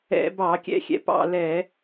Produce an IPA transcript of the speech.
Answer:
ɛ̰˧˩˧ b ɑ˧˩˧ kʲ ɛ̰˦˨ xʲ ɛ̰˧˩˧ p ɑ̰˦˨ l ɛ˧˩˧

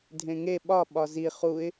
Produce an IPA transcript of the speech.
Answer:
dʱ ẽ ŋ e ɓ ɒ ɓ ɒ z i χ u ɪ̯

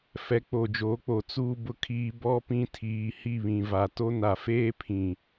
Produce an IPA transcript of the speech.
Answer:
f ɛ˨˦ k͡p o˨ d͡ʒ oː˨˦ k͡p o˨ t͡s uː˨ b ʊ˨ kʰ iː˨ b ɔ˦ p ĩ˦ tʰ iː˨ h i˦˨ β ĩ˨ v a˨ t o˦ n a˨ f eː˦ pʰ ĩ˨

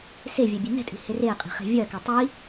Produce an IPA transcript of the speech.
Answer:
s e vʲ ɛ bʲ e n ɛ̤ tʼ i̤ h e r e qʼ i̤ χ e̤ vʲ ɜ k ɛ tˤ i

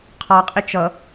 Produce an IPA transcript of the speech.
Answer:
qʰ ɑ qʼ ɪ t͡ʃ ʌ

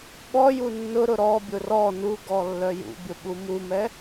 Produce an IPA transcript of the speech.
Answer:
ɓ ɔ j u nː ʊ ɾ ʊ ɾ ɔ bʲ ʊ r ɔ n u ɡ ɔ lː œ j ṵ bʲ ʊ ɓ u m u m ɛ

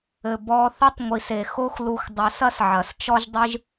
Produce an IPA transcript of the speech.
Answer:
ɘ˨ b ɔ˧ θ ɐ˦ tˤ ŋʷ i˨ s e˨ x o˦ x l u˧ x dˤ ɘ˨˦ s ɐ˦ s ʕ ɐ˨ s t͡ʃ ɔ˦ ʒ dˤ ɨ˦ ʒ

